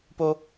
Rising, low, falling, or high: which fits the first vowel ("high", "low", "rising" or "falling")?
high